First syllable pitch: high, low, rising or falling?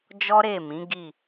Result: high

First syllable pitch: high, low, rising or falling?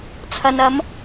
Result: low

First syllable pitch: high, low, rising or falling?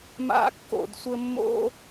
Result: high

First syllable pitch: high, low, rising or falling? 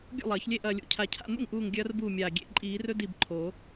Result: falling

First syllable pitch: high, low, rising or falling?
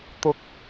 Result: high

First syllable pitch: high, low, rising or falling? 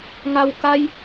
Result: low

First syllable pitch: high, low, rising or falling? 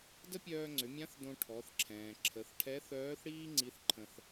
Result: high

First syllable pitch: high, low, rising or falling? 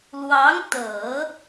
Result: rising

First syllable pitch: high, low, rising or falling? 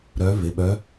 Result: rising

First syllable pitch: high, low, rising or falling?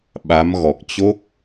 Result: rising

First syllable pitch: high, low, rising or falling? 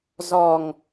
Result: low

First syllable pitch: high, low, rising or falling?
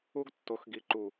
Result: high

